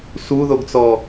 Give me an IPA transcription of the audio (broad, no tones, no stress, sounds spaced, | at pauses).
s u ð o ɡ t͡s ɔ